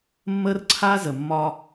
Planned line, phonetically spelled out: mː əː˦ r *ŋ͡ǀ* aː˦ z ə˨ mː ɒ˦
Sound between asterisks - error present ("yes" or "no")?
yes